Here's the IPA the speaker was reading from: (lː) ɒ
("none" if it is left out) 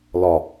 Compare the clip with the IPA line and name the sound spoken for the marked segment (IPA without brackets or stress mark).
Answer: l